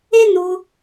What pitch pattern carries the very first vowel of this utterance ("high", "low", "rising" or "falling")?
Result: high